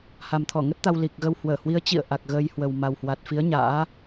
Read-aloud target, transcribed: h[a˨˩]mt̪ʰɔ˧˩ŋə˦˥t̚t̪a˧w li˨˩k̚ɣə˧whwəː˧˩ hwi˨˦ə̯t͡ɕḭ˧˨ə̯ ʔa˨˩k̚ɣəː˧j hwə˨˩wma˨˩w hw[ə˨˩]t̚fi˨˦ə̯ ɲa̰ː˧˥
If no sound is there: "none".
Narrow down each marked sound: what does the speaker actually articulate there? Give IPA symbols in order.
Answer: a˨˩, a˨˩

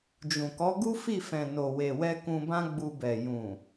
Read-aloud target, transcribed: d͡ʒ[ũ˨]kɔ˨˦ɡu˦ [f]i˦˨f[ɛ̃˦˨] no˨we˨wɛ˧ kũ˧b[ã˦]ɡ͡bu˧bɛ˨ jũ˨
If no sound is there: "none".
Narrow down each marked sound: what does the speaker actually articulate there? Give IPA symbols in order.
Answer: ũ˨, f, ɛ̃˨, ã˦

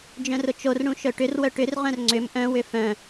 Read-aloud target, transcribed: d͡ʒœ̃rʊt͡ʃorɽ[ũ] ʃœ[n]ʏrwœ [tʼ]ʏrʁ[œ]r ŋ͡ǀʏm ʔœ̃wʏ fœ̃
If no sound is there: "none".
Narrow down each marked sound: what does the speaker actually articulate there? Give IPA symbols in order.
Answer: ũ, ʈ, ʈ, œ̃

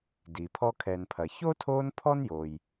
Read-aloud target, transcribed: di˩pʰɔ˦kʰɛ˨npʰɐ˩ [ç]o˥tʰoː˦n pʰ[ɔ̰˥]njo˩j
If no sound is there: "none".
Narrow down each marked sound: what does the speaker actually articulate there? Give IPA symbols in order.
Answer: ç, ɔ˥

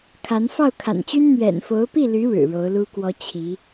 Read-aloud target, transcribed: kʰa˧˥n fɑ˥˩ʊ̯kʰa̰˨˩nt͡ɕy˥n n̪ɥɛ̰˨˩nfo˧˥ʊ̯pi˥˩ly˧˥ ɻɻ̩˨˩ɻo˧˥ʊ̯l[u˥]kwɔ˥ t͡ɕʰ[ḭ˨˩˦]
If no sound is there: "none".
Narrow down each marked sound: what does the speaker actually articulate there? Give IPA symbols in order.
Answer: u˥, i˧˥

